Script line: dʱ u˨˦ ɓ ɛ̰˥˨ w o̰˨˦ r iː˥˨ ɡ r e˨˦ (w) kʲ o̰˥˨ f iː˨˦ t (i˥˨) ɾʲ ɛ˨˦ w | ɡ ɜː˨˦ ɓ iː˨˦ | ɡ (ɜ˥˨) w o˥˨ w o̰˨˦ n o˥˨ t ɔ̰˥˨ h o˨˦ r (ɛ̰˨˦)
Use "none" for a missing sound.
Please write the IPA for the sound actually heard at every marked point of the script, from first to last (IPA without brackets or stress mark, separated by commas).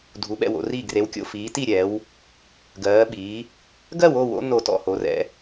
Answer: w, i˥˨, ɜ˥˨, ɛ̰˨˦